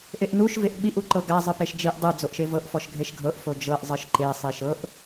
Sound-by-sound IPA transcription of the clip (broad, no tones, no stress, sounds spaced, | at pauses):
ʔ e ʔ n u ʃ v e ʔ ɓ i ʔ u ǃ ɤ ɡ a zˤ ɯ p e ʃ d͡ʒ i ʔ dˤ ɯ d͡z o ʔ ʃ e v ɤ ʔ f ɔ ʃ ɡʱ e ʃ ɡʱ ɤ ʔ f o d͡ʒ ɤ ʔ zˤ ɯ ʃ ǃ e sˤ i ʃ ɤ ʔ